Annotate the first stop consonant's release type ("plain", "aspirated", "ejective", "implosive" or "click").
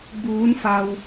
plain